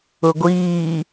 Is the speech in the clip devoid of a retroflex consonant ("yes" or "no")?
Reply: yes